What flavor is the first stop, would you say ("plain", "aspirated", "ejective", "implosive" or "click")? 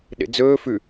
implosive